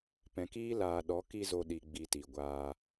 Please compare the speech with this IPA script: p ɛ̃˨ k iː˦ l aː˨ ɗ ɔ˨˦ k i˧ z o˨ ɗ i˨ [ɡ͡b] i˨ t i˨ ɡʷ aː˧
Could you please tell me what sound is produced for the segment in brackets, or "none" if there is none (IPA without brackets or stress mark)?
ɡ͡b